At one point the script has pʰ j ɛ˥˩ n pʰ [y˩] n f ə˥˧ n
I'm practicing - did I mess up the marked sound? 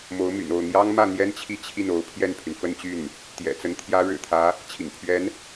no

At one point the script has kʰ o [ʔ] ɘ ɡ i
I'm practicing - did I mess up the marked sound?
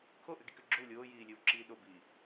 no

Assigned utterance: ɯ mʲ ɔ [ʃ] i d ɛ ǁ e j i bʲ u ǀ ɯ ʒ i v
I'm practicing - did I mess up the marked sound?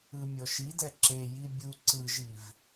no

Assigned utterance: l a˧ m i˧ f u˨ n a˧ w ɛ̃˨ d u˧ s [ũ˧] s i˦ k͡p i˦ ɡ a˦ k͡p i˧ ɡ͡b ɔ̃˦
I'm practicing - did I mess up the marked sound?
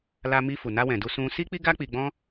no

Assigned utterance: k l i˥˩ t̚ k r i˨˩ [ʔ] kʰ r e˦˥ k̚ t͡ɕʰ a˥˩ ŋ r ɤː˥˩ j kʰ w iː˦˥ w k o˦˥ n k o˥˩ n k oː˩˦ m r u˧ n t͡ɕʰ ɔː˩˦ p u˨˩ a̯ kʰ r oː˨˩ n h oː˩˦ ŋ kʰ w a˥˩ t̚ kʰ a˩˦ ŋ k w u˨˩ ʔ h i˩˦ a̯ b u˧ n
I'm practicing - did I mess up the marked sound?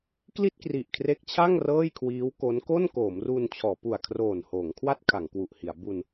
no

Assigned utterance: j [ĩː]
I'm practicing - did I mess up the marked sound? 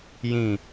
yes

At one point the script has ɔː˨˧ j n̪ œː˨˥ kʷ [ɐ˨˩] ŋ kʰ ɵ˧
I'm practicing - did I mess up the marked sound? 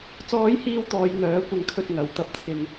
yes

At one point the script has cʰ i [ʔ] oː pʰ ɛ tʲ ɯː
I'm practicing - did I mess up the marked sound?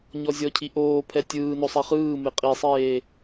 no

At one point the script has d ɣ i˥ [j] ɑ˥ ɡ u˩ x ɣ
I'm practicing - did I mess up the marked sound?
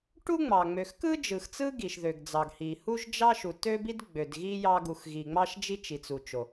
no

